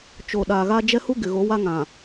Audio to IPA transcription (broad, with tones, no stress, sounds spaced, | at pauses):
t͡ʃ o˨ ɗ aː˨ ɣ a˦ d͡ʒ ɛ˦ h u˦ ɡ ɪ˨ ɣ o˨˦ w a˦ ŋ ã˨